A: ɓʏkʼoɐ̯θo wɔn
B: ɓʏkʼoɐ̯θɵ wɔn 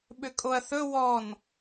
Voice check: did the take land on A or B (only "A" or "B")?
B